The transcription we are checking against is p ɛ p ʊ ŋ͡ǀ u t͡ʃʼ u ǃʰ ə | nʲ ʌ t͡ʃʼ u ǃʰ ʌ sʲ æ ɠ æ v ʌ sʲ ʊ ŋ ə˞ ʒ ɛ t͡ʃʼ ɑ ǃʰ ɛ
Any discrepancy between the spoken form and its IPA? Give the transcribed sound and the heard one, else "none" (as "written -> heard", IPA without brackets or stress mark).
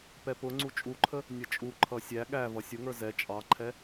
ʒ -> z